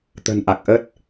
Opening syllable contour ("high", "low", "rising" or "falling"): low